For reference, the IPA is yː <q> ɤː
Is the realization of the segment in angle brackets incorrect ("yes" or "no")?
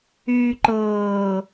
yes